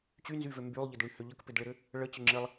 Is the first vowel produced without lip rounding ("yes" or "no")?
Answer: no